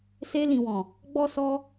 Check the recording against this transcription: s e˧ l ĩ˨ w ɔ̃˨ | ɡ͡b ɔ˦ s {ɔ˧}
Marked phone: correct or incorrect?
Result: correct